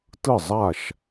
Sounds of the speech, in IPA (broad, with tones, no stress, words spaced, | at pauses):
tɯ˥˨zˤa˥˨ʃ